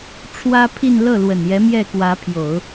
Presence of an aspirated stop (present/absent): present